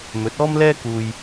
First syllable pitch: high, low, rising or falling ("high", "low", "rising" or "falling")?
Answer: rising